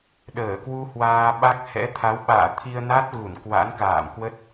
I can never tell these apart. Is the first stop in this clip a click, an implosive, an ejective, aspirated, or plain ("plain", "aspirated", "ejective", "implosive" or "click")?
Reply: implosive